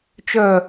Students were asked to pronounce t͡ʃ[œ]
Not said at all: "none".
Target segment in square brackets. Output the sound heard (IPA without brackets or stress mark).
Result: œ